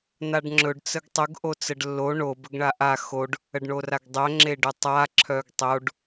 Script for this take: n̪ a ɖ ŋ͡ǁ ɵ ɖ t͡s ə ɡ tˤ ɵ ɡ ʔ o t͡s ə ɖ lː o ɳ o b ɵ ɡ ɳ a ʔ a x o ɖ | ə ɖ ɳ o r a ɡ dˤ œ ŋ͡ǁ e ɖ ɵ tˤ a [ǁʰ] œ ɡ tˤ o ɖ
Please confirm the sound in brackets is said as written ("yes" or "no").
yes